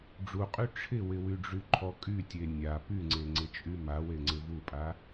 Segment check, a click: present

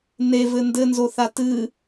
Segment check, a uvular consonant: absent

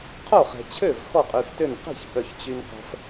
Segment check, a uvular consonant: present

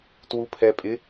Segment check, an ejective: present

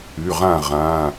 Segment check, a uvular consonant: present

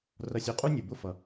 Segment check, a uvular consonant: present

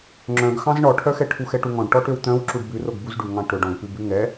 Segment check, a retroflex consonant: present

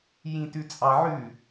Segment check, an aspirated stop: absent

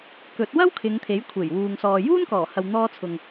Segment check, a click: absent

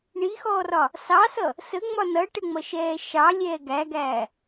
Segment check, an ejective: absent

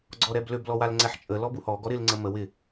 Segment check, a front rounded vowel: present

